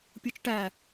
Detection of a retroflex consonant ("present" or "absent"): present